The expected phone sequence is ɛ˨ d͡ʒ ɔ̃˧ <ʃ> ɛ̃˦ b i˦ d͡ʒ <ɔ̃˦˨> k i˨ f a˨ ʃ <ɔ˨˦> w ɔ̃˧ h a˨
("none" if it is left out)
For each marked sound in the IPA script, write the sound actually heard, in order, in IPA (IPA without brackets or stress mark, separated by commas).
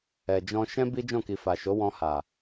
ʃ, ɔ̃˦˨, o˨˦